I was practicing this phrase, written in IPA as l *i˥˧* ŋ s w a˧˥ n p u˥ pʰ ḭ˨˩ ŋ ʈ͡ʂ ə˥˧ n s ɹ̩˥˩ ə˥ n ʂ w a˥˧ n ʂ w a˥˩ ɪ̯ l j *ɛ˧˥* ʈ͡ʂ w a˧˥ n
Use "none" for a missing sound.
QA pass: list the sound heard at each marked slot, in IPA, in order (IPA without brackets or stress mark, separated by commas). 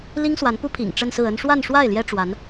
i˥, ɛ˥